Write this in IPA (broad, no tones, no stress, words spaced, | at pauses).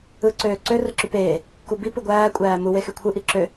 ɯ ǀøːǀø rɯǁypeː | kubi pɯɡʷæː kʷʼæːmu wexykʷʰɯ ʔiǁø